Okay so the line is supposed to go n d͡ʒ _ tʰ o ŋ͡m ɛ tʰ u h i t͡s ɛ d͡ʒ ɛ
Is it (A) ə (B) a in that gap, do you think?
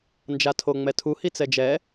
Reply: B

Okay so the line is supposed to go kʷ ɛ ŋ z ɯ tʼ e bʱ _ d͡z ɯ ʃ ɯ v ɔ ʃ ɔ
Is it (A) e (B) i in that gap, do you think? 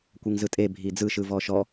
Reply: B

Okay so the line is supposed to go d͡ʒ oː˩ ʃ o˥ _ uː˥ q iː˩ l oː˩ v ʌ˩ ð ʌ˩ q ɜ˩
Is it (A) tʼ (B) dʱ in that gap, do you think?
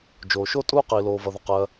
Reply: A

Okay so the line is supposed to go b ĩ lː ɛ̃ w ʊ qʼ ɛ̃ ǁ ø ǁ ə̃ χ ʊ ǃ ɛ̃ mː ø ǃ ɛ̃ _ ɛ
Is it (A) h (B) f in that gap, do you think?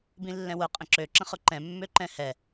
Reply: A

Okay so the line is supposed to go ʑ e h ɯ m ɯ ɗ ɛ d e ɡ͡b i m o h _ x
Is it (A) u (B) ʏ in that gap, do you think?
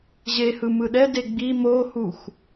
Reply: A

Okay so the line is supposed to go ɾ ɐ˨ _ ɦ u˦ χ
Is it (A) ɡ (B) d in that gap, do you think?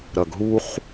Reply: A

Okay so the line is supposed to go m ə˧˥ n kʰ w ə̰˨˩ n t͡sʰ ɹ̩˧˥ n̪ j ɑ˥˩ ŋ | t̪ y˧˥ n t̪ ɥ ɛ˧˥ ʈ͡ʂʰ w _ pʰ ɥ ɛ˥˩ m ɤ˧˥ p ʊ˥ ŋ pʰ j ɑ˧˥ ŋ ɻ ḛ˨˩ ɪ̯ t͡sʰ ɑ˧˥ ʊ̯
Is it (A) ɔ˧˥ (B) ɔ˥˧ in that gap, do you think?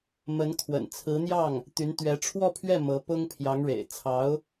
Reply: B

